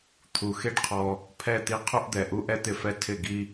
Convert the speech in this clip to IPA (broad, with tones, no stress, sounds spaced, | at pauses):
t̪ʰ u˨ x e˦ ɖ qʰ ɔ˧ | pʰ ɛ˦˨ t̪ i˧ qʰ u˧ ʔ d̪ ɛ˨ ʔ u˧ ʔ ɛ˦ t̪ ɪ˦˨ f ɛ˦ tʰ ɪ˦˨ ɡ i˦